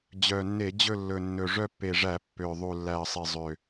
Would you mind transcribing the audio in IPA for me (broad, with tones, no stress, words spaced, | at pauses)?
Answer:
d͡ʑœ˨˩nːe˧˩˧ d͡ʑɵ˦˨lːɵ˨˩ nːɵ˨˩ʐœ˦˨pːe˨˩ʐæ˧˩˧ pːø˨˩ ðˤu˨˩lːæ˨˩ə̯sˤe˨˩ zˤø˨˩